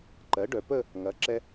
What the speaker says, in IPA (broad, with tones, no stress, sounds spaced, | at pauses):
ǃ ɜ˩˥ ɖ œ˩˧ p ə˥˧ | ŋ ɐ˩˥ ǁ ɛ˧